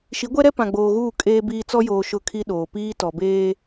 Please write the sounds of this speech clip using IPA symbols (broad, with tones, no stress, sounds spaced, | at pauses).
ʃ i˨˦ ɡʷ ɛ˦ ɾ ɛ˦ p ã˨ ɡ͡b oː˨ ɣ uː˦˨ kʼ eː˦ b iː˦ t͡s ɔ˦ j oː˨ ʃ ʊ˦ kʰ i˦ ɗ oː˨ p iː˦ t ɔ˨ b eː˦